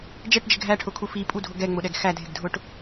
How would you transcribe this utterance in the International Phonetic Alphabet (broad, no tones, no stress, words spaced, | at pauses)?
d͡ʒɛʈd͡ʒɪ ɡʱæʈʰʊkʰu fipʼudʱʊ ɡɛŋ͡mʊɗɛɡ xædʱɪɡdʱʊʈ